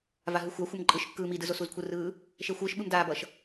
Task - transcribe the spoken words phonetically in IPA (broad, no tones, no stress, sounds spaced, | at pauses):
v a ɦ ɯ xʷ a xʷ ʌ m ǃʼ ɯ ʃ kː ɯː m i d ɯ z o s u z kʷʰ ɯ r ɯː | ʃ e xʷ ɯː ʃ ɓ ɯ m d aː b ʌ ʃ